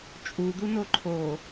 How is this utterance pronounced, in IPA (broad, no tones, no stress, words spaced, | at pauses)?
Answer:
t͡ʃʼud̪uno ǃʰo